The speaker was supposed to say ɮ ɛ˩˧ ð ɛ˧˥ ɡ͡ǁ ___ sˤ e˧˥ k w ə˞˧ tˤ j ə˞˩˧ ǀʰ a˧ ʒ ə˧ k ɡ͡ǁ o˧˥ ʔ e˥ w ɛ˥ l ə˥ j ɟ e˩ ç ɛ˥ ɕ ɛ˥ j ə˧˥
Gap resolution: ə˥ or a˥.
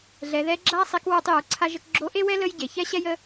a˥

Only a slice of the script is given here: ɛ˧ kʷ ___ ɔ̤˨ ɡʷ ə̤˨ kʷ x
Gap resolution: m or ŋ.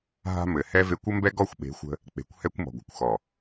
m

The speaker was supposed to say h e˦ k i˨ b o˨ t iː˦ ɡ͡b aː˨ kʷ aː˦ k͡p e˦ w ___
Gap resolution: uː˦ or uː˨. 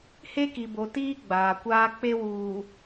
uː˨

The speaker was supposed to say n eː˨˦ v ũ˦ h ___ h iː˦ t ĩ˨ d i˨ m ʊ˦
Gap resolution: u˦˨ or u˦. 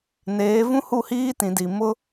u˦˨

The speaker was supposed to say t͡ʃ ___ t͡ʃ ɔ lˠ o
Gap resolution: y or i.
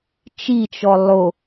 i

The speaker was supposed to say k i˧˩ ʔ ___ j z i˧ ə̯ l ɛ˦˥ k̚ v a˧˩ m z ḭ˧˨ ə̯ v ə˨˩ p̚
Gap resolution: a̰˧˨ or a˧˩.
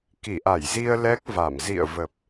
a˧˩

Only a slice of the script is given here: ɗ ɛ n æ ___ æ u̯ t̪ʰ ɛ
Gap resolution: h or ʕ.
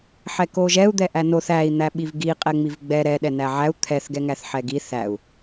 ʕ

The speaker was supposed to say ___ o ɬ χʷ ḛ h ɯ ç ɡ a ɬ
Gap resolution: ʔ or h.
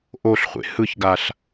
ʔ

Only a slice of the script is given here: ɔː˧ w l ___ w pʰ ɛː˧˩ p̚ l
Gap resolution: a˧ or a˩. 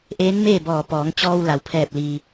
a˩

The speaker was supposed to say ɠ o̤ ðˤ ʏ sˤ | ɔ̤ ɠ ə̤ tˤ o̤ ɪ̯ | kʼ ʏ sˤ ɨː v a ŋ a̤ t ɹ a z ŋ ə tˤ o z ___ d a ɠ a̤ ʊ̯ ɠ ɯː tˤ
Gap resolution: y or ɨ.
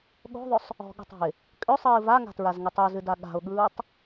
ɨ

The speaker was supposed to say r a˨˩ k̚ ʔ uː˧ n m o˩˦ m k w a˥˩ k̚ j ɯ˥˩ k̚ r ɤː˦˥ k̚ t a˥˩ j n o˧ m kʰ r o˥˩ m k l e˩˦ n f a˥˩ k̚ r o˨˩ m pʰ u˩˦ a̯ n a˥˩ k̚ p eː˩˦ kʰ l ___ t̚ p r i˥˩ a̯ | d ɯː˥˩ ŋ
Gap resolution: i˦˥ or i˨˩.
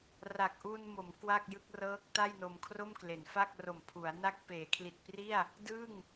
i˨˩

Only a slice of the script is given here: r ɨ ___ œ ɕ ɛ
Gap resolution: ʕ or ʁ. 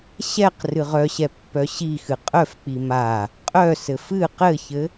ʁ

